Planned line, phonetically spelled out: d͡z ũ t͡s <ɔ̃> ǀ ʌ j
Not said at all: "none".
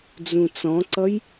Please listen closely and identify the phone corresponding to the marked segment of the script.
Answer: ɔ̃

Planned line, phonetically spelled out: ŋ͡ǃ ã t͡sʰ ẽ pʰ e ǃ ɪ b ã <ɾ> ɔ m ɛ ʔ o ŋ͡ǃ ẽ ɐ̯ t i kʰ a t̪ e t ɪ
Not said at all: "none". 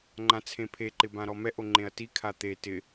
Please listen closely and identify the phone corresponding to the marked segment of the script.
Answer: ɾ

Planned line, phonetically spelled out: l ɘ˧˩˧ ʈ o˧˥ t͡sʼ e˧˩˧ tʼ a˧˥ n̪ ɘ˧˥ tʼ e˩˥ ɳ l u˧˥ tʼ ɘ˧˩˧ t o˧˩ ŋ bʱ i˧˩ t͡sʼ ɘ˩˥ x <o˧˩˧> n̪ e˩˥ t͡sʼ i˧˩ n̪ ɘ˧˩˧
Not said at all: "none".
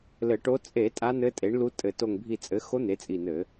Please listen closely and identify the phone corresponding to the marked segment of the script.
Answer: o˧˥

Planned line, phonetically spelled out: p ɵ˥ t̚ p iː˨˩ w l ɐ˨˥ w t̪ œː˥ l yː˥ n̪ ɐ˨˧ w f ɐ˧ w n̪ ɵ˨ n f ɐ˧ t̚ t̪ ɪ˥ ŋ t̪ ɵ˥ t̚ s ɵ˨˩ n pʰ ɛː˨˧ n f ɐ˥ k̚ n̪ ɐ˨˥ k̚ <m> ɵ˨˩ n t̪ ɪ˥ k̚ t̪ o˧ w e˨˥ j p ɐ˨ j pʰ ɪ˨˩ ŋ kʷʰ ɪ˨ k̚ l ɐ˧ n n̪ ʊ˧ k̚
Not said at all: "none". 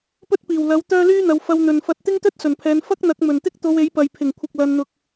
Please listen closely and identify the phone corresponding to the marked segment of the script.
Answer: m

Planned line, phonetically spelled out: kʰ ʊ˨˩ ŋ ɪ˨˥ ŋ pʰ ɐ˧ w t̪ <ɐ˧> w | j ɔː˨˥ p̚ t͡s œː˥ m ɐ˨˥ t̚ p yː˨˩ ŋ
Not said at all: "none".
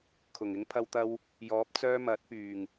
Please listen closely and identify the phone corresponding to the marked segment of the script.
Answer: ɐ˧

